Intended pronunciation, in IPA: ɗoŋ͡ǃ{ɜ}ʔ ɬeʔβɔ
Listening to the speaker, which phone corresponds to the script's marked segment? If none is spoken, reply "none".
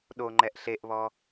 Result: ɛ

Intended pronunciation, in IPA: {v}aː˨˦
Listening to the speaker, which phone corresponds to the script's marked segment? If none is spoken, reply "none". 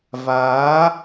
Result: v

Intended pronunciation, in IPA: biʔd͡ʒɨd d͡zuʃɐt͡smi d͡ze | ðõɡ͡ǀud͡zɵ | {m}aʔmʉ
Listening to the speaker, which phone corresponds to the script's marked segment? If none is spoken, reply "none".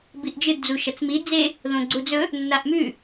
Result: nː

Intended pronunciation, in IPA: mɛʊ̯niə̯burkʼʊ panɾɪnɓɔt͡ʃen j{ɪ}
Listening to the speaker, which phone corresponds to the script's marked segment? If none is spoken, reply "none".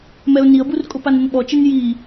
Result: i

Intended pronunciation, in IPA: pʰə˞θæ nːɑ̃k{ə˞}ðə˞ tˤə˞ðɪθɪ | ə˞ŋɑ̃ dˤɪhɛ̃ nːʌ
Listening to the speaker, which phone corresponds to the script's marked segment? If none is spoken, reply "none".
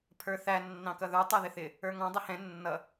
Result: ʌ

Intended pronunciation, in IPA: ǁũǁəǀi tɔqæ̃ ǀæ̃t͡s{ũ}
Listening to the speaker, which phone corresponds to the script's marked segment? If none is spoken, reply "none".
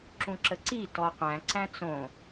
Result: õ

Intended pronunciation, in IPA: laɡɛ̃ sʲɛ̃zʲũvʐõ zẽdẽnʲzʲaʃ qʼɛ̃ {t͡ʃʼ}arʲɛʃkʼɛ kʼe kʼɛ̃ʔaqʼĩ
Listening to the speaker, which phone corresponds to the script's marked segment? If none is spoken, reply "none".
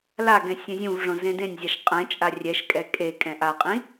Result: t͡ʃʼ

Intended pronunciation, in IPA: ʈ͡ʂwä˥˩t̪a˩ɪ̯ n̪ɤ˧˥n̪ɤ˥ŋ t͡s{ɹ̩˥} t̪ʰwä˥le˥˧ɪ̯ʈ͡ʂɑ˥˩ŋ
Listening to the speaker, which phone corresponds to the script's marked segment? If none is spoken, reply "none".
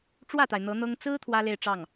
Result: ɹ̩˥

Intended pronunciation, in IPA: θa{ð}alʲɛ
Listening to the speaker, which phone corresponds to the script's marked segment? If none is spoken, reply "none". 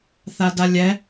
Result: d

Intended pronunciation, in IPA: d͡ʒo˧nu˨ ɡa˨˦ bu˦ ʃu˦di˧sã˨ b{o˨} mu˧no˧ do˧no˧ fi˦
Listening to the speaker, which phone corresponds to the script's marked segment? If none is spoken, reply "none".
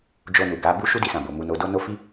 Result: o˨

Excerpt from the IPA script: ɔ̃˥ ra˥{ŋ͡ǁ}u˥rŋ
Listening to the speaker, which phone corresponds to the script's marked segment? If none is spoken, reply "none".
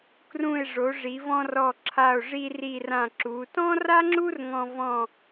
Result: ŋ͡ǁ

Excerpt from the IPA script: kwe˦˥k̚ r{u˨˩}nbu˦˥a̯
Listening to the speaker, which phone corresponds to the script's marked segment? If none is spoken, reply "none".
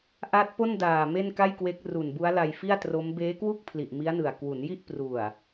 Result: u˨˩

